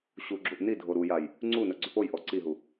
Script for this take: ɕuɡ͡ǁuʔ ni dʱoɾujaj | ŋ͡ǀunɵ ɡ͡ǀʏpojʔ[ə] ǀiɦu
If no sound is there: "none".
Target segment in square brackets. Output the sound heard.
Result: ɔ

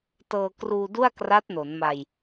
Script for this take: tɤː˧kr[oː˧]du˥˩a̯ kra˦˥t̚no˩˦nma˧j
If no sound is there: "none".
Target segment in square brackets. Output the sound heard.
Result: uː˧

